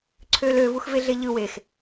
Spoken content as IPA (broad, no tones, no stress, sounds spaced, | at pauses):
ǀʰ ø l ø v u x v e ɮ e ʎ ɯ w e x